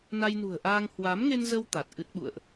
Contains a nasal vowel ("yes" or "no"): no